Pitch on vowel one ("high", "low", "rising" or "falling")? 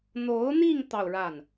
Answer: rising